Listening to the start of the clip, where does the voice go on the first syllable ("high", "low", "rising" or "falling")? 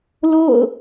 falling